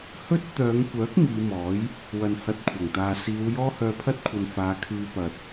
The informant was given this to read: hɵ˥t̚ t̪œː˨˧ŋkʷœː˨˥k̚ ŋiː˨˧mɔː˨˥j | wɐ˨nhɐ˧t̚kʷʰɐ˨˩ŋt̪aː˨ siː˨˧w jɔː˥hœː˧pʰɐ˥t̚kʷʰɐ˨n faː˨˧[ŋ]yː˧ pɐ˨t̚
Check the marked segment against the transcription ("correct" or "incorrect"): incorrect